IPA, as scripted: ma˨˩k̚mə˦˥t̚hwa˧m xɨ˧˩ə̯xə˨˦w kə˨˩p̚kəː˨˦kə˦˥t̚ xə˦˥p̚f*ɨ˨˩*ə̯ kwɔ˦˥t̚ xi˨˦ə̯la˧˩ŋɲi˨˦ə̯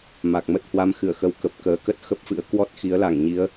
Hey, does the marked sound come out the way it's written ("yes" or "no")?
no